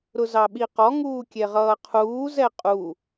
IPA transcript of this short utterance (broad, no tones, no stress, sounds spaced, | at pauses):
ɾ ʊ z ɑ ɓ i q ɔ ŋ uː kʲ ɛ ʁ ʌː qʰ uː z ɛ qʼ u